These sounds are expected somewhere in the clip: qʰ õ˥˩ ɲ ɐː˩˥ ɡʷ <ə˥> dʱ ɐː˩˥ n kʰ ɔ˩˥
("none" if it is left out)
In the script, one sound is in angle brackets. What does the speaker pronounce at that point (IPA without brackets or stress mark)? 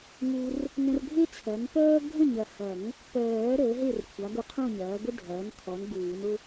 ə˥